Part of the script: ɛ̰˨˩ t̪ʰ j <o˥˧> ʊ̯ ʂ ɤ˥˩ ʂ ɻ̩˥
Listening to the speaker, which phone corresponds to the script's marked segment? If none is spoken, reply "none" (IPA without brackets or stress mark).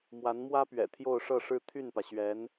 o˥˧